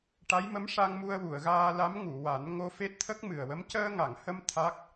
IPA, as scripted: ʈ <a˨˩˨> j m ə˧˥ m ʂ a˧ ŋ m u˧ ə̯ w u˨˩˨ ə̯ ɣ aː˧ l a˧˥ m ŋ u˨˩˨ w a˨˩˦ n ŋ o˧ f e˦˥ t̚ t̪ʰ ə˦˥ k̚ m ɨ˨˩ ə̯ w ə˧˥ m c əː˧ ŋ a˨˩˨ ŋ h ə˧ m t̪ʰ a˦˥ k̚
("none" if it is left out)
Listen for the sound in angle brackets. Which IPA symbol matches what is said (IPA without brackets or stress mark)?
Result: a˧˥